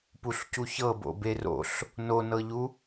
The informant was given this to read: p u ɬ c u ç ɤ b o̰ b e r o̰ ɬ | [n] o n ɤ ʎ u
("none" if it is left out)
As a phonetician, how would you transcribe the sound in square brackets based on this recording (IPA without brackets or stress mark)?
n